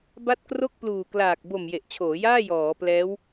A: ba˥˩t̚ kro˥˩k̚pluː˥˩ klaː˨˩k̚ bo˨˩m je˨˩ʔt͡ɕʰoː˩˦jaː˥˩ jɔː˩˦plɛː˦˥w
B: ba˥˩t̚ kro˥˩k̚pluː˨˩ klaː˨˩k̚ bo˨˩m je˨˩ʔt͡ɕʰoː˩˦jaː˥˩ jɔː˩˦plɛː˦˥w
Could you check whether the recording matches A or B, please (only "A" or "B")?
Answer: B